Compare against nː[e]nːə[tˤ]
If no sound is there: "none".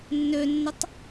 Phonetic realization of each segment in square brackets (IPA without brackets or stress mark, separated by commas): ø, tˤ